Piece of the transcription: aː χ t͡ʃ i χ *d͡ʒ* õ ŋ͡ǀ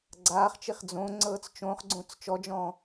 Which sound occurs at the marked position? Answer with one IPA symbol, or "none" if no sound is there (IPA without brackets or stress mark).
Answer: d͡z